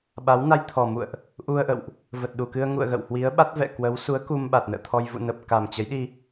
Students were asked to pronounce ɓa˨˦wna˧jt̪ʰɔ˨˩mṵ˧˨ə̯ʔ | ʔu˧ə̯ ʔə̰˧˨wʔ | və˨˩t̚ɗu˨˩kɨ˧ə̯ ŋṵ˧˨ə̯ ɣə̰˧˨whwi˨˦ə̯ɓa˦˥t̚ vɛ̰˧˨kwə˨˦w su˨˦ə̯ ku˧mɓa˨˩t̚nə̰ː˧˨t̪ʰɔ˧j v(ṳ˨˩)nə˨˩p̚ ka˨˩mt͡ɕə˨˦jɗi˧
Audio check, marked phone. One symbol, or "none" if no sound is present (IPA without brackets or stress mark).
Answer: ṵ˧˨